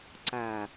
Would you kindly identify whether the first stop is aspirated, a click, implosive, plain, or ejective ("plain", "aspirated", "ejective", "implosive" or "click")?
click